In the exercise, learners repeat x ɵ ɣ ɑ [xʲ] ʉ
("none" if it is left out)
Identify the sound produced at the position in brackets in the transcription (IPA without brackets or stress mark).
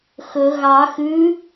x